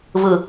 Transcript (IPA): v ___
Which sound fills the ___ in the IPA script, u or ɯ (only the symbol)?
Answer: ɯ